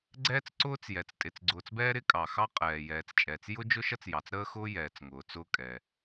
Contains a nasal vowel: no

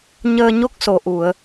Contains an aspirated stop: no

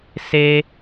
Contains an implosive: no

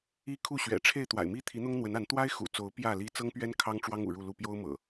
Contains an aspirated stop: yes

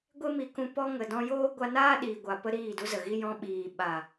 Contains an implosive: yes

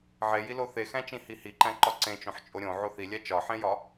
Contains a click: yes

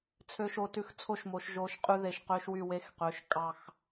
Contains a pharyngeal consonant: no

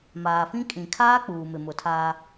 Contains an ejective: yes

